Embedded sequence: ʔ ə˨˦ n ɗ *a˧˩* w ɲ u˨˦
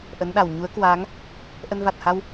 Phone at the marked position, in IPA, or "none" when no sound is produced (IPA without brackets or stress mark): a˧˩